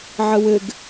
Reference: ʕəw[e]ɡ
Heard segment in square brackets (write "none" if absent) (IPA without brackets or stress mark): ɘ